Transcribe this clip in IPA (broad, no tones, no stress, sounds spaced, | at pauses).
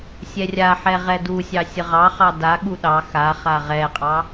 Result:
sʲ ɛ rʲ a ħ ɛ ʁ ɛ d u sʲ ɑ sʲ ə ʁ ɑ χ ɑ d a ɠ u ɗ ɑ x a χ a ʁ ɛ qʼ ɑ